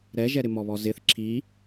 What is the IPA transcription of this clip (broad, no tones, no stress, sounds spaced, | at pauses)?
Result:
ɾ ɛ ʒ ɛ ɾ ɪ m ɔ β ɔ z ɪ θ ǁʰ i